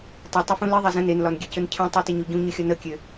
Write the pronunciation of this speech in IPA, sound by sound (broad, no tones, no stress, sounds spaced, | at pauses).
tˤ o tˤ ə f ũ l i ðˤ ɛ z ə̃ n e n l ɒ n ɡʲ ɛ c ɵ n cʰ ə̃ tˤ o t ɪ ɲ o ɟ ũ ɲ ɵ xʲ ɒ n ə kʲ ø